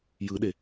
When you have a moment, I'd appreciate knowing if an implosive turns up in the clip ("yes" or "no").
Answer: yes